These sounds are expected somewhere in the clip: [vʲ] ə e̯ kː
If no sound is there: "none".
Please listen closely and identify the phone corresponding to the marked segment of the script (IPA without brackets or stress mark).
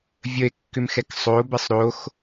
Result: vʲ